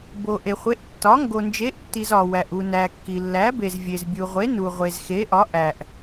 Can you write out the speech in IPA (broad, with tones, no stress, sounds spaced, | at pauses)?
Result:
b o˨ ʔ e˨ χʷ e˨˥ ʔ tː ɒ˨˥ ŋ ɡ o˨ n d͡ʒ e˨˥ ʔ tː i˨ z ɒ˨ w æ˨ ʔ u˨ n æ˨ kː i˨ lː æ˨˥ b e˨ z vʲ e˨ z bʲ u˨ ʁʷ e˨˥ n u˨ ʁʷ e˨ z x e˨˥ ʔ ɒ˨˥ ʔ æ˨ ʔ